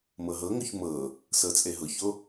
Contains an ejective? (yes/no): yes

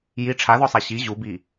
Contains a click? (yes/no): no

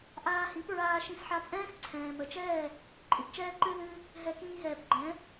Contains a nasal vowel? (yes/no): yes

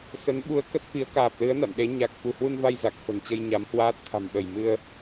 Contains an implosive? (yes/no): yes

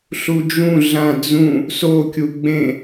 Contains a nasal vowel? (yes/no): yes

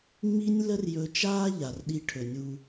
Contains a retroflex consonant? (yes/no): yes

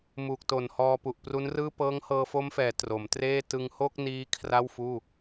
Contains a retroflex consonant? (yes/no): no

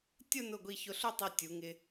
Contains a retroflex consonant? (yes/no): no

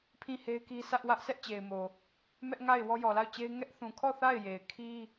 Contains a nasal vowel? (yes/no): yes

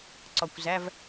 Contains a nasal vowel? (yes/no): no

